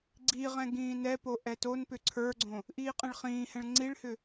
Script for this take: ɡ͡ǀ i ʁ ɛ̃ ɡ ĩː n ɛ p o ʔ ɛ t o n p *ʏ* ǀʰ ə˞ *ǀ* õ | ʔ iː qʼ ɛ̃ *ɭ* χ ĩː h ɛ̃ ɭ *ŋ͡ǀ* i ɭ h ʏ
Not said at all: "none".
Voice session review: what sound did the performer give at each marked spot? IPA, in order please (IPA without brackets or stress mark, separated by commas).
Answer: ʏ, ɡ͡ǀ, ɭ, ŋ͡ǀ